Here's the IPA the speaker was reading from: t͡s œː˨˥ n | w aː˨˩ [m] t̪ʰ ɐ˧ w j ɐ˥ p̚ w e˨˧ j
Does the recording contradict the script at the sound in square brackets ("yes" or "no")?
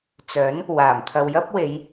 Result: no